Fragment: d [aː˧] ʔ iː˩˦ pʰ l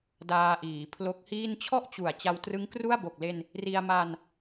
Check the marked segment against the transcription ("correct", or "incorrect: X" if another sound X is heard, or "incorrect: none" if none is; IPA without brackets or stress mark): correct